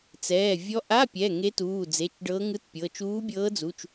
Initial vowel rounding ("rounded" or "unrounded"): unrounded